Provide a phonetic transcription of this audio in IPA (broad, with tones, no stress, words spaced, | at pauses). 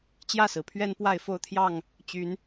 t͡ɕjä˥˨sɹ̩˩pʰɥɛ˦n pwa˥˨ɪ̯fo˥˨ʊ̯t̪ʰjɑ˥˨ŋ | t͡ɕy˨˦n